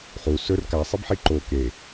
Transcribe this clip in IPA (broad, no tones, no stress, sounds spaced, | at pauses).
χ u s ɵ r k a sˤ i b ħ i ǃ o k e